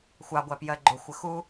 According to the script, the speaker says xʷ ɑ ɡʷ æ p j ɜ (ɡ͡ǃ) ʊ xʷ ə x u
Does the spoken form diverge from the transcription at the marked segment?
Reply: no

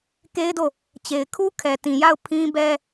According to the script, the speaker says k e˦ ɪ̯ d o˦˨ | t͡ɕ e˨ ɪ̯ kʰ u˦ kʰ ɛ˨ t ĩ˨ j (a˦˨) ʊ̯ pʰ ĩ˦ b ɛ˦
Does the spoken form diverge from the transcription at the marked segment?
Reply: no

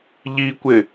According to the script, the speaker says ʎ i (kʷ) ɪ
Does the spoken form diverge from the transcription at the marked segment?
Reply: no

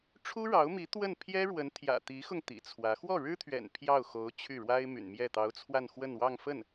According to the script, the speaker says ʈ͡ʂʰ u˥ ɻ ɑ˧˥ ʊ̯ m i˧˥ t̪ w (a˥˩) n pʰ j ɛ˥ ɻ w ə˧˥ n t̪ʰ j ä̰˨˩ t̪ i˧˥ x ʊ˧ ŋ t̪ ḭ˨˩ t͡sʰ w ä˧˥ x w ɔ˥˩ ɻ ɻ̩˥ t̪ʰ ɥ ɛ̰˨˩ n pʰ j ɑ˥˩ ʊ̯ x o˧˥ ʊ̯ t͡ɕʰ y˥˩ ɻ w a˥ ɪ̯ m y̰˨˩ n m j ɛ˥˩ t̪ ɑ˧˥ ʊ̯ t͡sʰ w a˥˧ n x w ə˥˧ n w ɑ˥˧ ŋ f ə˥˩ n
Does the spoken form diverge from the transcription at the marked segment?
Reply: yes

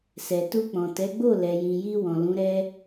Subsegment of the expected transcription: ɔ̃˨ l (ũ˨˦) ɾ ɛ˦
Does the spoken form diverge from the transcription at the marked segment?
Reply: no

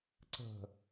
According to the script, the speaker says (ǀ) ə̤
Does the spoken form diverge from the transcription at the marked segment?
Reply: no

